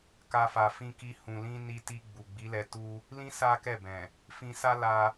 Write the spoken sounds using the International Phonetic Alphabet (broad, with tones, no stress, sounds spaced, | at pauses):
k a˧ f a˨ f ĩ˧ k i˧ h ũ˨ l ĩ˧ n i˧ t i˧ ɡ͡b u˨ ɡ͡b i˨˦ l ɛ˧ t u˧ | l ĩ˦ s a˦ k ɛ˦˨ b ɛ̃˨ | f ĩ˧ s a˦ l a˧